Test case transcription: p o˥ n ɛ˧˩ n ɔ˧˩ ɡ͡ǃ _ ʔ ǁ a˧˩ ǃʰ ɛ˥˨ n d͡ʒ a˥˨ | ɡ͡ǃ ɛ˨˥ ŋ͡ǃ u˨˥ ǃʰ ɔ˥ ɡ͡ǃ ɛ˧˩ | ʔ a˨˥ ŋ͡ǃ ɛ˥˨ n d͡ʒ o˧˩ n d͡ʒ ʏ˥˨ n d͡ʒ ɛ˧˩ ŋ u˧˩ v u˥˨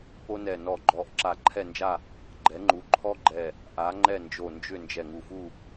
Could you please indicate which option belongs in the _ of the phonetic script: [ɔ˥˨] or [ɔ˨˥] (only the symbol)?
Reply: ɔ˨˥